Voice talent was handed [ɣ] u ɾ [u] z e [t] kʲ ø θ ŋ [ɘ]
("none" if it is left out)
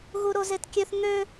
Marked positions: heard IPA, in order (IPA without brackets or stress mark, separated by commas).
ɣ, o, t, ø